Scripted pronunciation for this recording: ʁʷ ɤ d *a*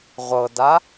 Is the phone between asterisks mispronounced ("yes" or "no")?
no